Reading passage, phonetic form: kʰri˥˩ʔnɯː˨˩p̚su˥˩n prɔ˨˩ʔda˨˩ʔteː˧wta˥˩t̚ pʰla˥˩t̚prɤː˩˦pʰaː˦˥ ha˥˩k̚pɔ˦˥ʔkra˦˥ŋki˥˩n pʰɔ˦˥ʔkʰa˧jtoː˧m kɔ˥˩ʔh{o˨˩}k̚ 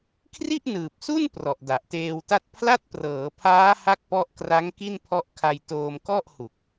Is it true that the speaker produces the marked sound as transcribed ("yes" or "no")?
no